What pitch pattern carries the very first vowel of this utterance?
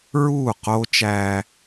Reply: falling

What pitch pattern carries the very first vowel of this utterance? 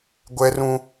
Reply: high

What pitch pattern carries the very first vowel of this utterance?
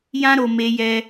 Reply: high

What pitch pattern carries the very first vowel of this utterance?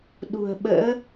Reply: low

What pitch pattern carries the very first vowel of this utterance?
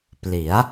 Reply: rising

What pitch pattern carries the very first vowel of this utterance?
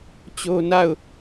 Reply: high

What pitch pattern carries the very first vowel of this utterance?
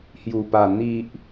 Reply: low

